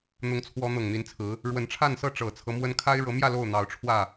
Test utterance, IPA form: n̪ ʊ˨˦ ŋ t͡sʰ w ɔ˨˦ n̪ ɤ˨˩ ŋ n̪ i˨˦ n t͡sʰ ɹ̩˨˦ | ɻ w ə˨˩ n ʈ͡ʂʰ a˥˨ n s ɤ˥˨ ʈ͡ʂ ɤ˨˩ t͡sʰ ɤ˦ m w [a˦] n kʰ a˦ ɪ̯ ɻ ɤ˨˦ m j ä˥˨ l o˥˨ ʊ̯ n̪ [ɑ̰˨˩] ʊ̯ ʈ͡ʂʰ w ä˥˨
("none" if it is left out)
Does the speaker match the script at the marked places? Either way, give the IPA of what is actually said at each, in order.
ə˦, ɑ˨˦

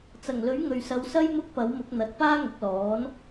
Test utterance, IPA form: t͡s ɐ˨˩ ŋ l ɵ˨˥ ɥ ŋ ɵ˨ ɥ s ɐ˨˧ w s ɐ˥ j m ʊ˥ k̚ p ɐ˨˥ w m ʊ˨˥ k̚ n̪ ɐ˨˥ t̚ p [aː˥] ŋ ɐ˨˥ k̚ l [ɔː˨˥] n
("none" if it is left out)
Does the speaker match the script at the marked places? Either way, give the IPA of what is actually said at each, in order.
aː˥, ɔː˨˥

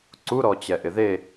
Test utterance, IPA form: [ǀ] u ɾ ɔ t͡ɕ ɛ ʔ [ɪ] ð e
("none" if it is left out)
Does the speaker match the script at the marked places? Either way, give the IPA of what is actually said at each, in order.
ǀ, ɪ

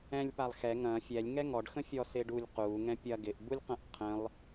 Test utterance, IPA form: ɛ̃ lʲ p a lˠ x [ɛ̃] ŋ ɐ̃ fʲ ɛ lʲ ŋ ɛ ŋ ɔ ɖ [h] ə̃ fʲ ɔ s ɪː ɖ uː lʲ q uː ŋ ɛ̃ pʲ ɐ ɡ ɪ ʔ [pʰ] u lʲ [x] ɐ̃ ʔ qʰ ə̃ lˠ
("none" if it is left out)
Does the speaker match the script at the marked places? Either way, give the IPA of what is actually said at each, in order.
ɛ, x, b, q

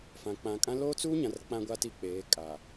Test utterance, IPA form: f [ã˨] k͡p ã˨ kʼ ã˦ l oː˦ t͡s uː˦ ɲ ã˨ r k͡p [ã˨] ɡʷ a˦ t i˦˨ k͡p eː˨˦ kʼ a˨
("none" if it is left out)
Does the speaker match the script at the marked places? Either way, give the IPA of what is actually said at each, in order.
ã˨, ã˦

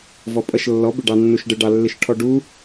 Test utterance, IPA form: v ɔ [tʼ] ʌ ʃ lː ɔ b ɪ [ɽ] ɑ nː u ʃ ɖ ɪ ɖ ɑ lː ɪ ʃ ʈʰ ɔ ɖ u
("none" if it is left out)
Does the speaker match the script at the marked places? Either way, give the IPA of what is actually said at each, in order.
pʼ, ɖ

